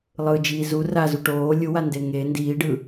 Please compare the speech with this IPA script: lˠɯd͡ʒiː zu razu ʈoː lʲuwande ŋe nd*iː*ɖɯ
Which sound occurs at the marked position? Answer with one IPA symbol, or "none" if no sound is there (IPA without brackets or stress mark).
iː